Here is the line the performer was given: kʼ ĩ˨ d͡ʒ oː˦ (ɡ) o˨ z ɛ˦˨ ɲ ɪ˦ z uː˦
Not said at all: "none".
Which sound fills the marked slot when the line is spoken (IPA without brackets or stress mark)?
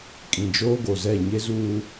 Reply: ɡ